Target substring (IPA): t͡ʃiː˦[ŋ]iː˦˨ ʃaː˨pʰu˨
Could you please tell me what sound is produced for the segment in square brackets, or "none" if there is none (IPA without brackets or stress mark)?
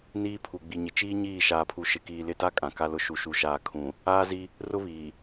ɲ